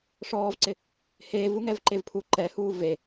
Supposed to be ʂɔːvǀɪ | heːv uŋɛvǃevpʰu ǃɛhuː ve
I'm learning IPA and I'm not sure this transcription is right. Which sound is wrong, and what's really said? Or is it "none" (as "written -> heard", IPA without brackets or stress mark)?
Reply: none